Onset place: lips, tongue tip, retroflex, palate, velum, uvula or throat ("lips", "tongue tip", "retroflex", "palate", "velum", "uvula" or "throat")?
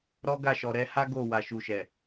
tongue tip